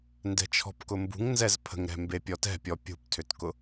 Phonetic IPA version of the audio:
n d ɛ̤ t͡ʃʰ ɔ̤ p k ʊ m b ṳ ŋ n z ɛ z pʰ ə̤ ŋ ɾ ɛ̤ m b e pʲ ɔ t ɛ̤ pʲ ɔ pʲ ṳ p tʰ ʏ t k ʊ

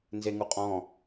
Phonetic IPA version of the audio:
n z e ŋ u qʼ ɔ̃

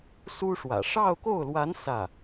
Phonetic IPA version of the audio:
s u˥ ʂ w ä̰˨˩ ʂ ɑ˥˧ ʊ̯ k o˥˩ ʊ̯ l w a˧˥ n s ä˥˩

